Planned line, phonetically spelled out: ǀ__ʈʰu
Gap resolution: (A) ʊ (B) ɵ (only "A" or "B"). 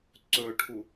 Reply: B